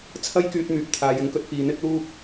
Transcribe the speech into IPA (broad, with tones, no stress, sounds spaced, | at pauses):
t͡sʰ ɐ˥ j k yː˧ t̚ m yː˨ p̚ t̪ʰ aː˨ j ɪ˨˥ ŋ k ɵ˨˥ t̚ f iː˨ n̪ ɪ˥ k̚ l uː˥ p̚